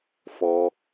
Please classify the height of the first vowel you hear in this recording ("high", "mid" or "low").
mid